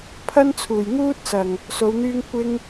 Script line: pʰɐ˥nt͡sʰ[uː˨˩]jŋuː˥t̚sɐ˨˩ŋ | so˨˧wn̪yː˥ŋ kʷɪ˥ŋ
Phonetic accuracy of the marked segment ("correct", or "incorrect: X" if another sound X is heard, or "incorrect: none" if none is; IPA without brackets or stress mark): correct